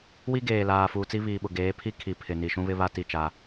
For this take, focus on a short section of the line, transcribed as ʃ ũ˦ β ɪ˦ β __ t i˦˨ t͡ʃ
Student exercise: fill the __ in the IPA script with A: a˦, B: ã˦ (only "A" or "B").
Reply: A